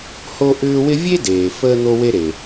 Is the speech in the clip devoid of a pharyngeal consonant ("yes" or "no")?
yes